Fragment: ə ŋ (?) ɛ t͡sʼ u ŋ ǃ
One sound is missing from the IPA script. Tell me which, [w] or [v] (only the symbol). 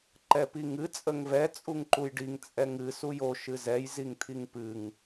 v